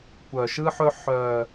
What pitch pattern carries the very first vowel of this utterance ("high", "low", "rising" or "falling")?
low